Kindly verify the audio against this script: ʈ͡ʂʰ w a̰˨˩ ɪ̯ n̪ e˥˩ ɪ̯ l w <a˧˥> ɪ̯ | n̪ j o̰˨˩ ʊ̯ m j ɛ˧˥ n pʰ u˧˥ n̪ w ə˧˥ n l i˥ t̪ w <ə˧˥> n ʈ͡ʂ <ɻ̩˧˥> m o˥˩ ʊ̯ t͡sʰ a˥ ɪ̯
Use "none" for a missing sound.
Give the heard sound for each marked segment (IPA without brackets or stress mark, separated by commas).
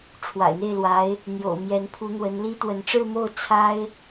a˧˥, ə˧˥, ɻ̩˥˧